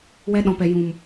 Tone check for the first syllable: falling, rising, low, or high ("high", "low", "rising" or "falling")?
high